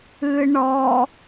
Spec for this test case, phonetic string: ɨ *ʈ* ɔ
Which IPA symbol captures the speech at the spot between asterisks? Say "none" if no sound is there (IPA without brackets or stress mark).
ɳ